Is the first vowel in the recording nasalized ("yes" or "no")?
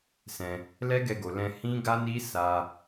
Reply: yes